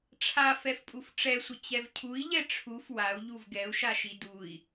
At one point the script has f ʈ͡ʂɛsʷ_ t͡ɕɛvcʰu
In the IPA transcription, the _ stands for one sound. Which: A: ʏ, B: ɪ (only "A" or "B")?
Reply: B